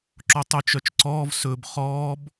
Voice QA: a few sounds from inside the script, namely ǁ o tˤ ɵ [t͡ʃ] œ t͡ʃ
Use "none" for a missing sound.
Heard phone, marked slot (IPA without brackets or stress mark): t͡ʃ